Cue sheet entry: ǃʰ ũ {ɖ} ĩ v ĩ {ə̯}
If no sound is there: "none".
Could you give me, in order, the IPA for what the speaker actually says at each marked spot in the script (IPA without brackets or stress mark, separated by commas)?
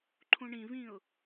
ɳ, ʊ̯